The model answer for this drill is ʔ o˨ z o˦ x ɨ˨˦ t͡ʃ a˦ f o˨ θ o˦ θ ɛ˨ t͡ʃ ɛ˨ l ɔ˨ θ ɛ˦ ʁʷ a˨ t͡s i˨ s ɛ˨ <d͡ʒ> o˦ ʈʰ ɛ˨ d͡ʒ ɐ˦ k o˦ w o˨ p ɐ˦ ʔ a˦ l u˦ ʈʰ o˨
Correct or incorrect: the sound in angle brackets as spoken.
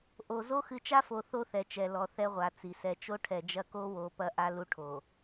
incorrect: t͡ʃ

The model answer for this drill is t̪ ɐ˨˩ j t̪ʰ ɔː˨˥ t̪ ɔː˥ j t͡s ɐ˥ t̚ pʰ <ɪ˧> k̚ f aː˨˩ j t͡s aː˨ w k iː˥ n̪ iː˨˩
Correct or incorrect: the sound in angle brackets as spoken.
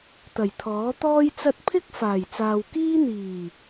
incorrect: ɪ˥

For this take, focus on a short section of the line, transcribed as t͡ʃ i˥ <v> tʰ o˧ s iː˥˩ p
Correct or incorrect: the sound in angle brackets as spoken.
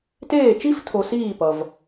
incorrect: f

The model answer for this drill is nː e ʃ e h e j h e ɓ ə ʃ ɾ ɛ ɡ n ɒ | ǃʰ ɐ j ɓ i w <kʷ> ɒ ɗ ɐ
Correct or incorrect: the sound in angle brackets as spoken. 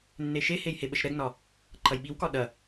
incorrect: k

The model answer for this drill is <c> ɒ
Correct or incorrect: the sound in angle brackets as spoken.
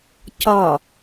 correct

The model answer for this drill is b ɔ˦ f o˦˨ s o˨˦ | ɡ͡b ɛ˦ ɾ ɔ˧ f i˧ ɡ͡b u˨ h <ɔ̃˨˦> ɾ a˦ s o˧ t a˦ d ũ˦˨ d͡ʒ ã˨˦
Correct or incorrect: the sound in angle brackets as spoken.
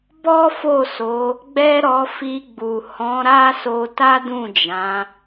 correct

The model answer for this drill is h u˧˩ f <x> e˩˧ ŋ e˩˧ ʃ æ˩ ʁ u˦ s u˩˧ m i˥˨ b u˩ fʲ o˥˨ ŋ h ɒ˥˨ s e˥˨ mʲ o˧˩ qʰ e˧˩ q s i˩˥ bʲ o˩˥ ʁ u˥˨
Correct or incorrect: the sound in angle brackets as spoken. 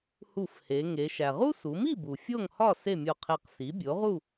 incorrect: h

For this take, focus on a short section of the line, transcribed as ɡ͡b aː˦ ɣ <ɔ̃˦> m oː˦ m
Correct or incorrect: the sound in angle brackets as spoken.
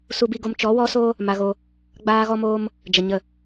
incorrect: ɔ˦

